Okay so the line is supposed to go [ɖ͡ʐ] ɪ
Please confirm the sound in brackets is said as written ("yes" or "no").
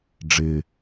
yes